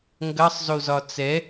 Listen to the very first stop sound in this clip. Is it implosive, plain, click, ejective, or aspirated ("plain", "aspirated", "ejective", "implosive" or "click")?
plain